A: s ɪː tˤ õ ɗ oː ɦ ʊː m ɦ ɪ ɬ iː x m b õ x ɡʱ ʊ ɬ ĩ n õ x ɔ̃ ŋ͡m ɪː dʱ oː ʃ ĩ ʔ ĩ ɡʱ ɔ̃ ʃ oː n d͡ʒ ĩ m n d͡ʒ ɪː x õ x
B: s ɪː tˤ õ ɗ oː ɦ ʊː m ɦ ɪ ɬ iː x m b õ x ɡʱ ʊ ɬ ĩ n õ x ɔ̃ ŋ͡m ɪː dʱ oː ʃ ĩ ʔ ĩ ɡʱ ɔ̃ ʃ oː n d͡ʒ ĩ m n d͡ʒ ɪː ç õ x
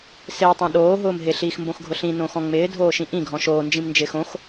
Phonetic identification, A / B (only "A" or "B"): A